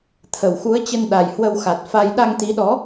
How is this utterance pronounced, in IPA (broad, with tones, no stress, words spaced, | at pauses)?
t̪ʰə˨˩wxu˨˦ə̯ t͡ɕə˧nɗa˨˩jhwə˧w xa˨˩t̚fa˧j ɗa˧ŋt̪i˨˦ɗɔ˨˦